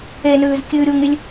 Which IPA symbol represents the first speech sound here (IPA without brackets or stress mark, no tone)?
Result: e